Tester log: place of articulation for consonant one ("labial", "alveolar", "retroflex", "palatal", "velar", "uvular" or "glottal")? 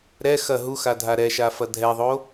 alveolar